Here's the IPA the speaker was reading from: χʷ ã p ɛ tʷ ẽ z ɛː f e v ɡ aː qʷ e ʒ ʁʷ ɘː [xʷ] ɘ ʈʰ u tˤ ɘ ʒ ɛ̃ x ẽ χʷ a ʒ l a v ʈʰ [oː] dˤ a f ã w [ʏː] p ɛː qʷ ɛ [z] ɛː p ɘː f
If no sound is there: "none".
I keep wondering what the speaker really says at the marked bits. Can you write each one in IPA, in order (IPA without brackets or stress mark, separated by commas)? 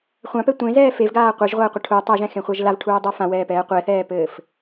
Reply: qʷ, uː, ɛː, θ